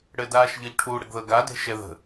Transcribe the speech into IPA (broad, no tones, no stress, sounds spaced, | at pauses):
ɽ ɘ d aː ʃ ʎ ɤ ʎ ʈʰ u ɽ ə ɡ ð ɤ ɡ a d e̤ ʃ ɛ ð ə̤